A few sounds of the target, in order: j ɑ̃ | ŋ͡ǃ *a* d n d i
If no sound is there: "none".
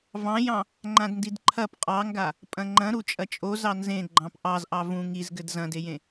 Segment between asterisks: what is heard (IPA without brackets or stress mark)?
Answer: ã